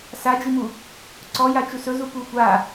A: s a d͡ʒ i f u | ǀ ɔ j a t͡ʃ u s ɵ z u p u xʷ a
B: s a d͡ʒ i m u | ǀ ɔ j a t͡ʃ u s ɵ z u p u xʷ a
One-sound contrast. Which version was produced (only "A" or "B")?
B